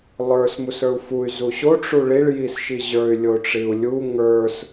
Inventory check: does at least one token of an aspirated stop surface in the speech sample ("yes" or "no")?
no